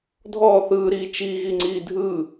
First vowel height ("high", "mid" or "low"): mid